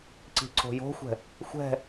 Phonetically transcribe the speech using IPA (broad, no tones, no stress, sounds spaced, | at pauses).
ǀ i̤ ǀ o̤ j o̤ xʷ ɛ̤ | xʷ ɛ̤